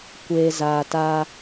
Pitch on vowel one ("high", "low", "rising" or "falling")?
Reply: low